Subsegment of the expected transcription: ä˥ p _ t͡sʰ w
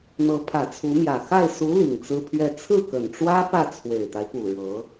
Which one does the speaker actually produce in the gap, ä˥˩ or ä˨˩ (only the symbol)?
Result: ä˥˩